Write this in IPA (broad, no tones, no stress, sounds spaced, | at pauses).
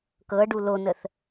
k ɤ ɖ u l o n ə θ